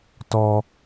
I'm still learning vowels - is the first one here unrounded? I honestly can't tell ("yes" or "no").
no